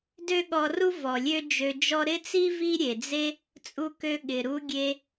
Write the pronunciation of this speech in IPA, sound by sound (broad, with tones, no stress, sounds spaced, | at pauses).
d ø˦ ɠ ɔ˧ r u˦ v ɔ˨ lʲ ø˦ d͡ʒ ø˧ d͡ʒ ɔ˦ ɾ ɪ˦ t͡s i˦ v i˦ ɾʲ e˨ d͡z e˦ | t͡sʼ u˧ k ø˧ ɠ ɪ˨ ɾ u˦ ɡʲ e˧